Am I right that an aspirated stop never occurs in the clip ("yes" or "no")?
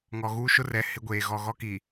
yes